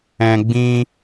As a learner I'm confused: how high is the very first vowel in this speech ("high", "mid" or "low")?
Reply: mid